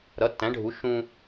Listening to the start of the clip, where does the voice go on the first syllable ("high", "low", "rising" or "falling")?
rising